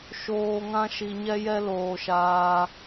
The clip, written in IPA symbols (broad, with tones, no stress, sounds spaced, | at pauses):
ʃ oː˧ ŋ ã˦ ʃ i˧ ɲ ɛ˦ j ɛ˦ l oː˧ ʃ aː˧